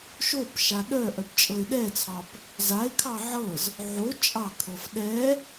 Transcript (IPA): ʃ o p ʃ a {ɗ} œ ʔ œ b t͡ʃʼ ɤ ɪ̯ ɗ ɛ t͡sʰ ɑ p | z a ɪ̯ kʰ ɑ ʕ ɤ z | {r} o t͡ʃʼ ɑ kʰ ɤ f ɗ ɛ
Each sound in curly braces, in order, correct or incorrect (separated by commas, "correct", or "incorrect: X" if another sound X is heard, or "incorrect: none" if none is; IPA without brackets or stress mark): correct, incorrect: ʕ